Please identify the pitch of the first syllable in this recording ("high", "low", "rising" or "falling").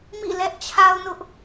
falling